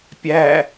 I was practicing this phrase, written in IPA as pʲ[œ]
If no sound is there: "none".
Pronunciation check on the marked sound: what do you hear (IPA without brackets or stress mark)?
æ